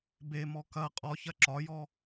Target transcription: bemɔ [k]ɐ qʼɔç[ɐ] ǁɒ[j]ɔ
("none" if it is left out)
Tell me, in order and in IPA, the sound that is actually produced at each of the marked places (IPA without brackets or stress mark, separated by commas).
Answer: k, ɐ, j